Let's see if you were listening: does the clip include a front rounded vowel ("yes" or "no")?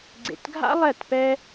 no